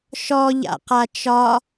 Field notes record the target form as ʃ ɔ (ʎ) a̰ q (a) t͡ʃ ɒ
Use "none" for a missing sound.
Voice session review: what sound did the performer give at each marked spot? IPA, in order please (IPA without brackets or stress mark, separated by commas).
ʎ, a